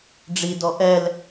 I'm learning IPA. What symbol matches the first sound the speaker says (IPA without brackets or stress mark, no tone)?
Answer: ɖ͡ʐ